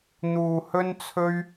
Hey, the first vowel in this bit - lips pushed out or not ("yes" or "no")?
yes